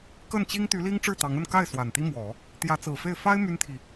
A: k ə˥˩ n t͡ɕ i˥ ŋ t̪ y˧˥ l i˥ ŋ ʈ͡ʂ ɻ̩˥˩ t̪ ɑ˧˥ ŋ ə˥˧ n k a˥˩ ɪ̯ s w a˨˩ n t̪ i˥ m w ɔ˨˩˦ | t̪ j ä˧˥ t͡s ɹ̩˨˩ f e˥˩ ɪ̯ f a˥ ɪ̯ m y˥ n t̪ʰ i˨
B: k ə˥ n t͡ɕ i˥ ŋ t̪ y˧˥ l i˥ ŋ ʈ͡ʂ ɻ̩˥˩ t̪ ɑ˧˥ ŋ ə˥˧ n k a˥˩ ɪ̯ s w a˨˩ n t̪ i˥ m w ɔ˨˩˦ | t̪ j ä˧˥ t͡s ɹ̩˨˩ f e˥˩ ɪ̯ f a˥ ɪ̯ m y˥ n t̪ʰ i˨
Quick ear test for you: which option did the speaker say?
A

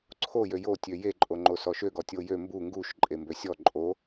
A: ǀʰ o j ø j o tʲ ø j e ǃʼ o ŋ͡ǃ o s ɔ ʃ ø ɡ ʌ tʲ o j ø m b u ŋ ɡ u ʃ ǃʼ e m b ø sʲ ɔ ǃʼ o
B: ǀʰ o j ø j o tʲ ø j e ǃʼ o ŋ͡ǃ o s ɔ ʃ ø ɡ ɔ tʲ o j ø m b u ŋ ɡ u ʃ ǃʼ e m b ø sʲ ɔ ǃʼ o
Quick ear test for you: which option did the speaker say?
B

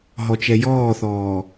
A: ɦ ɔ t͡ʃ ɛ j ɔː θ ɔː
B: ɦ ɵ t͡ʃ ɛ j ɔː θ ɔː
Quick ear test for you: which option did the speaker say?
A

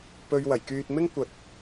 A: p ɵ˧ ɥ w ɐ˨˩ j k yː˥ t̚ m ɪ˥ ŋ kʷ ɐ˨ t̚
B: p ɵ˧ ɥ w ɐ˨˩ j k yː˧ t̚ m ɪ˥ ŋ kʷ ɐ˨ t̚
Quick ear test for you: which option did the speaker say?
B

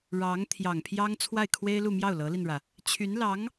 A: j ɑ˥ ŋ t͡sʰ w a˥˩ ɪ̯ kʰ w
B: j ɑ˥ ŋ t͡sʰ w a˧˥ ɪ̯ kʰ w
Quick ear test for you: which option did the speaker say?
A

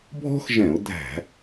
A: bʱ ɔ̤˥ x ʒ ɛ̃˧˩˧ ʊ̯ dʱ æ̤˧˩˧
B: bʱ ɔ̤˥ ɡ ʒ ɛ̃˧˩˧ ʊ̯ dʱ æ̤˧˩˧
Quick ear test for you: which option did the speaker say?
A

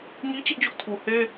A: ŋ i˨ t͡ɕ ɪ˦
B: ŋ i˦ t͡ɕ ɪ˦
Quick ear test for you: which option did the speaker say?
B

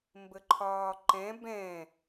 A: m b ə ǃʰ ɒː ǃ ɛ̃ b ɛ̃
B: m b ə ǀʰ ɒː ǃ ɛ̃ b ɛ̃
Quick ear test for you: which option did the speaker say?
A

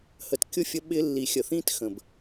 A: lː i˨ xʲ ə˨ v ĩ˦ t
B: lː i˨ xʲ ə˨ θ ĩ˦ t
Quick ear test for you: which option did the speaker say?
B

